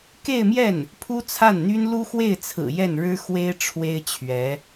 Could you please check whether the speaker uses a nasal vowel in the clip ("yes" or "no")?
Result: no